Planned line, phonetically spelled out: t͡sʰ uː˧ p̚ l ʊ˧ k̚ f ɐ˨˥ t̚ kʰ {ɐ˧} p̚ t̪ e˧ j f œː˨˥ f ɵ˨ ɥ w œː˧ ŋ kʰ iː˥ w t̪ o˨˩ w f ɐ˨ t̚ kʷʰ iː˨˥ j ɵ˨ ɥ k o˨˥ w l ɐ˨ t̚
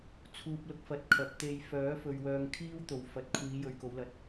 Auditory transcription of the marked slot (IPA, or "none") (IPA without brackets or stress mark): ɐ˨˥